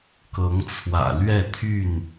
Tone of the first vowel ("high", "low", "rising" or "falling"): rising